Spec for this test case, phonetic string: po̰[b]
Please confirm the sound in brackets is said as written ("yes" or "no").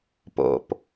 no